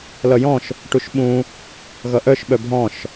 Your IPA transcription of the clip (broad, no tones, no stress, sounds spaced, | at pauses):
l ʌ j ɔ̃ ʃ | ʈ u ʃ ɓ ũ | ɣ ʌ ʔ œ ʃ ɓ œ bʱ ɔ̃ ʃ